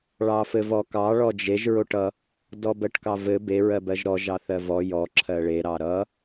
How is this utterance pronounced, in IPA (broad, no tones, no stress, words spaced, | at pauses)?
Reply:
ɭɑfɘvɔkɑ ɭɔd͡ʒeʒ ɹoʈʌ | dɔbɜʈkɑvɘ be ɹɜbɜʒɾɔ ʒɑθɜvɔ jɔ ǁʰɜɭe ɾɑɾʌ